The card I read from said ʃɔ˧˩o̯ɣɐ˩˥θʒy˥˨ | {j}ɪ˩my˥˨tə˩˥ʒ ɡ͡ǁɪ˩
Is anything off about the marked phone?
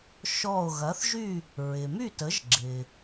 yes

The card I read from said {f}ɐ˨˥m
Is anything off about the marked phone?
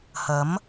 yes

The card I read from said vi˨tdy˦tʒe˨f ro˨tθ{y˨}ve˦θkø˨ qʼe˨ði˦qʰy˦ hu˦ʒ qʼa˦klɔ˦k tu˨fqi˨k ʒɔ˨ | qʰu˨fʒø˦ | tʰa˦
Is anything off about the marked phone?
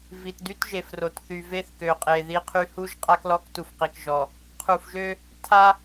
no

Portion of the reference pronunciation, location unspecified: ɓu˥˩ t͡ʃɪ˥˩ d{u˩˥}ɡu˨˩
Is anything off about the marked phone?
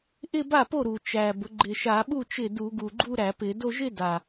yes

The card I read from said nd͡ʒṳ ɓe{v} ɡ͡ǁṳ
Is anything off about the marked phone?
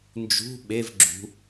no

